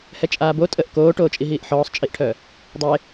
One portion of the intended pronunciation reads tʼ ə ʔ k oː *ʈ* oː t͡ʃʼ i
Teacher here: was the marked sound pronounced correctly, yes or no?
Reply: yes